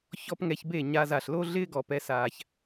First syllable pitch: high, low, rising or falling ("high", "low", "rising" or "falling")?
high